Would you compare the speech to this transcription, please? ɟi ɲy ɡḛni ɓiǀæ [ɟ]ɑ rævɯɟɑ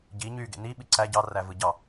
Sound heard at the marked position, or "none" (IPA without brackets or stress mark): ɟ